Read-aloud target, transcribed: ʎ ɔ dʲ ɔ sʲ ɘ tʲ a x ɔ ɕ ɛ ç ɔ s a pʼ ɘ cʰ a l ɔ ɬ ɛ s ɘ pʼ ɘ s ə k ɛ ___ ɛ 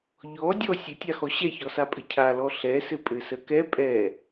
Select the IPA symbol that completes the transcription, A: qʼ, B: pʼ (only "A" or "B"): B